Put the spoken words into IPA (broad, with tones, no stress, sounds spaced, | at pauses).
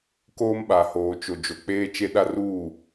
k oː˦ m ɓ a˨ h oː˨ t͡ʃ o˨ d͡ʒ o˨ k͡p eː˦ t͡ʃ e˦ ɗ a˦ r uː˦˨